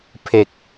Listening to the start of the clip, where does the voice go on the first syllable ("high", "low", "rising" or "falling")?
low